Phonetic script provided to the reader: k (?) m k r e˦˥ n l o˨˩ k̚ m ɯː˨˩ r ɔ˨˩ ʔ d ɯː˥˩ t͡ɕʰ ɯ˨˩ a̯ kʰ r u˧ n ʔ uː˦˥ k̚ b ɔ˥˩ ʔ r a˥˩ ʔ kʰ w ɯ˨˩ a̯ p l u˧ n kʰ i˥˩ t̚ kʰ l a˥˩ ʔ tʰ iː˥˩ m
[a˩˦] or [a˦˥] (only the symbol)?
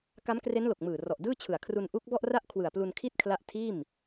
a˦˥